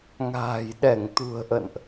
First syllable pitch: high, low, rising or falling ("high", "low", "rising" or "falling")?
low